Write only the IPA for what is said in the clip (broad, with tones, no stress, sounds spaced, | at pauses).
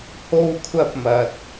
h o˥ w kʷʰ ɐ˥ p̚ m ɐ˧ t̚